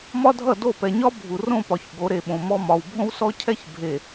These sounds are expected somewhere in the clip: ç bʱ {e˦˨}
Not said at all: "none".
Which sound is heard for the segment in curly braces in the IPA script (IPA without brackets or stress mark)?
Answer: e˨